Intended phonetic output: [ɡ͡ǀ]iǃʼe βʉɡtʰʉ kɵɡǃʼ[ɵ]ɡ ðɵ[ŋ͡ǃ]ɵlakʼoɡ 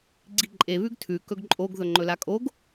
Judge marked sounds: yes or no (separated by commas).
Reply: yes, no, yes